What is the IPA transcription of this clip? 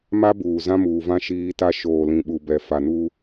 ma˦buː˨ zã˦muː˨vã˦ ʃiː˦ ta˦ ʃoː˨lĩ˨ɓu˨bɛ˨ fa˨nu˦

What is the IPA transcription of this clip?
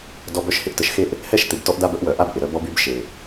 dɔ˨b œ˦ʃhɪ˦ʔ tə˨ʃxe˦ʔ | hɛ˦ʃt̪ɪ˨b tɔ˦ʔda˦bə˦ʔwœ˨ ʔa˦bʔɪ˨ ɾœ˦bɔ˦by˦b ʃe˨

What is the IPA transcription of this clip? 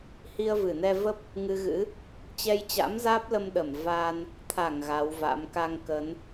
hi˧ə̯vɨ˧˩nɛ˧və˦˥p̚ | ŋɨ˧ɣɨ̰˧˥ | t͡ɕɛ˧jt͡ɕa̰˧˥mzaː˦˥p̚lə˧m ɗə˧˩m va˧n | t̪ʰa˧˩ŋ ɣa˨˦wva̰˧˥m ka˧ŋkə˨˦n

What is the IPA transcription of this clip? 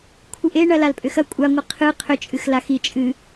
kʷʰɨʔeɳɐ lalpʼʏxɐ kʷʼaŋʷɨ qʰɨ qʰʏt͡ʃʼɨx laxi t͡ʃʼɨ

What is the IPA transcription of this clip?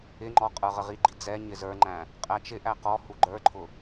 ɪŋ͡ǃɔ qʼə˞ʁəʁiɡ͡ǃi d͡zɛ ɲɪzə˞ŋ͡ǃæ̃ | qʼæt͡ʃɪʔæ qɔ huɡ͡ǃə˞ǃʰʊ

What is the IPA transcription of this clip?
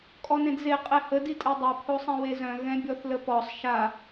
kʼɔnẽdze qʼɛhə ditʼɛdˤɛ pʰosˤɛ̃wezœ̃ ɣɛ̃bʲɔθləpɔsˤ ʃa

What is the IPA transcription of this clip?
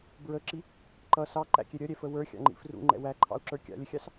bɹəǁi | ǃʌ sɑǃæ̰kʲɛ ɾʲʌɾʲɛfə wə˞xʲɑ̰ŋ͡ǃḭ frṵŋ͡ǃɛ̰ wæǃʰɑ̰u̯ǁə˞ kʲɑ̰lʲəxʲɑs

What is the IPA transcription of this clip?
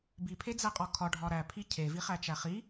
bipʰed͡zæqʼɒ kʰɒɖʱɒ ɾæpʰi cʰeviχæt͡ʃæ χi

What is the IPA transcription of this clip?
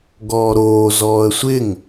ɡɔːɾoː zɔːə̯sʷɪŋ

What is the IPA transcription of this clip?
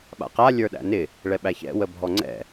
ɓa̰qa lʲə˞ɗæ̰nɪ | ɭɛɓæçɛ̰ wəbʱɔŋ͡ǀɛ̰

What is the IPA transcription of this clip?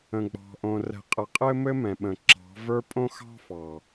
ə̃˨ɡ͡bɑ̤˨ʔõ˨ rɛ̤˨qʼə˨ qʼɘ˦mɘ˦mɛ̃˨ɓə̃˨ ǁɑ̤˨˦və˞˦ pʼõ˦xɑ̤˦fɑ˨

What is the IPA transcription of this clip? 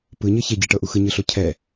pɯɲɤ çeɟiʈɤʔu xɯɲɯɬo cʰɛ

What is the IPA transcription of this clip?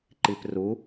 ǃipru

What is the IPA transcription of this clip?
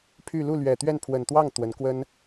pʰy˥˧ lu˥˩lɥɛ˨˩t̪ɥɛ˥˩n pʰwə˨˩nt̪wɑ˥˩ŋ t̪wə˧˥nkwə˥n

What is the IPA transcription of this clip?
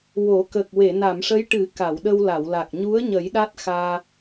wo˨˩˦ kə˨˩k̚we˨˩˨ na˨˩˨mʂə˧˥jʈɨ˨˩˦ ka˨˩˨w ɗə˧wla˨˩˨wla˨˩k̚ ɲu˧˥ə̯ ɲə˨˩˦jɗa˦˥t̚xaː˧

